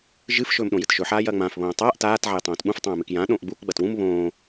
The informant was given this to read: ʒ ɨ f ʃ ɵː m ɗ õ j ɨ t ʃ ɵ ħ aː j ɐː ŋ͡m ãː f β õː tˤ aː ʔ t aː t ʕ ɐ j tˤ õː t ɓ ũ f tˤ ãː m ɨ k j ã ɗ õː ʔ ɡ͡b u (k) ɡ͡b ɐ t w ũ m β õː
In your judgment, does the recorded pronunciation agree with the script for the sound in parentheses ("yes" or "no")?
yes